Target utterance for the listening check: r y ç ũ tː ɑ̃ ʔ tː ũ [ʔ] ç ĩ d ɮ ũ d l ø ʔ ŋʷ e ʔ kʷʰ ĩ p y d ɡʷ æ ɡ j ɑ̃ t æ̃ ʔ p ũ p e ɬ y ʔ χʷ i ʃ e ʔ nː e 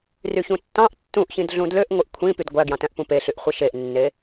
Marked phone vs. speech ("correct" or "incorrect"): correct